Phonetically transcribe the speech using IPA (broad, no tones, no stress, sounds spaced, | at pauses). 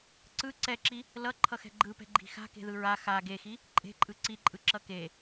ǀ ɯ ǀ ɛ ǁ i | l ʌ ǃʰ ʌ x ɛ̤ ɡ͡ǃ ɯ p ɛ̤ ɡ͡ǃ i̤ x a̤ k e̤ ð ɯ ɹ a x a ɡ e x i | ǃʼ e̤ ǃʼ ɯ ǀ i ǃʼ ɯ ǁ ʌ k e